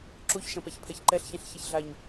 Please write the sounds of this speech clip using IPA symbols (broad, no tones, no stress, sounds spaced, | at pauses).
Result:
ǁ u ç ʃ ɐ̃ p ɛ ç pʰ ɛ ç ǃ ɛ ɬ ç ɛ̃ ɬ ç e ç ɮ a ɲ